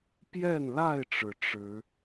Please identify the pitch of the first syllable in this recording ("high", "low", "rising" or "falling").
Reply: falling